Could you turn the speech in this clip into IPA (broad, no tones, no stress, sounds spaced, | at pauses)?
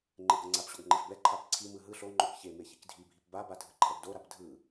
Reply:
ŋ͡ǃ e ɡ ɤ ŋ͡ǀ a p ɕ o ɡ ŋ͡ǃ e f b ɛ ǃʰ a p ǀʰ i m ɯ ɦ ɯ ɬ o ŋ͡ǃ o k ç e m e ç i k dʱ i bʱ i p b a b a dʱ ɯ ǃʰ ɛ ɡ d o ɾ a p dʱ ɯ